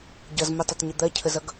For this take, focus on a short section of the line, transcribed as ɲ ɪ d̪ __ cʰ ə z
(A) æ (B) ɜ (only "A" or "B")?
B